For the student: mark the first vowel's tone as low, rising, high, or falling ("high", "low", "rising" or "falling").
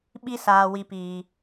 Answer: high